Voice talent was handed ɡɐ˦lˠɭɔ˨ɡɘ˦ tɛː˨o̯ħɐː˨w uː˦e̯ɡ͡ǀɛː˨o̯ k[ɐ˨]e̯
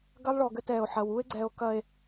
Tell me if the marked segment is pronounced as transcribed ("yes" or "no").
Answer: yes